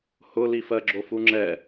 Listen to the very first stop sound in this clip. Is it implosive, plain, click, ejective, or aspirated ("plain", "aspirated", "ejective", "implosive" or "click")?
click